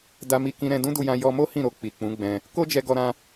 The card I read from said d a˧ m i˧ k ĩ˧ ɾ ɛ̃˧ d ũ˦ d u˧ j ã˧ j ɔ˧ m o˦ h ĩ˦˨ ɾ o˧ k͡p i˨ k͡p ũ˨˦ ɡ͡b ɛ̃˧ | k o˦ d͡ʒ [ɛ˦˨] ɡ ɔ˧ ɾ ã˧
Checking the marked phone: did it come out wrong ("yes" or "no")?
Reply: yes